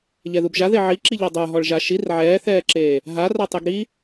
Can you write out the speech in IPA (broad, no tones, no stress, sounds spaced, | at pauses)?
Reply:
ʎ ɛ ð u b ʒ a ð e ʕ i ǁ i ʎ ɔ dˤ ə˞ ɦ ɔ ɭ ʒ a ʃ i r ʕ ɛː θ ɛː ǁ eː | ɦ a r a tˤ e ɡ ɾ i